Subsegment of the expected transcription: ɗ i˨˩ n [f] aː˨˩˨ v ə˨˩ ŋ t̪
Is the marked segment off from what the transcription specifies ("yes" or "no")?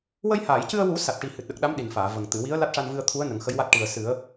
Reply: no